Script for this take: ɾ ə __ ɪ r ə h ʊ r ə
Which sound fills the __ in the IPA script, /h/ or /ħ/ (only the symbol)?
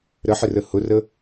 ħ